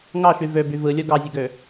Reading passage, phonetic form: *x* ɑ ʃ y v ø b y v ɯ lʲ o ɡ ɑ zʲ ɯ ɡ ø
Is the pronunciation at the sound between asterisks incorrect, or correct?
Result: incorrect